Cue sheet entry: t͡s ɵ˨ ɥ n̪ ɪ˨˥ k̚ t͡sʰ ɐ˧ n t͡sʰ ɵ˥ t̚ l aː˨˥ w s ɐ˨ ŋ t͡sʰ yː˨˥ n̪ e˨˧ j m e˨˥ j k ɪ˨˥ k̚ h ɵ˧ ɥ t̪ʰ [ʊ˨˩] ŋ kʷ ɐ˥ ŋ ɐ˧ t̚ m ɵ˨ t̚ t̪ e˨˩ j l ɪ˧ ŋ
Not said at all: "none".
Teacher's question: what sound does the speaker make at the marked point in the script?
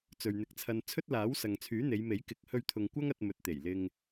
ʊ˨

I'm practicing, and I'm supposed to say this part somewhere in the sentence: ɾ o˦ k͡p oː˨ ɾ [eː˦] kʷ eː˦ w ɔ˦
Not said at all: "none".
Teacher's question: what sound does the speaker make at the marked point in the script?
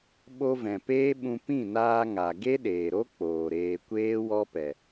eː˧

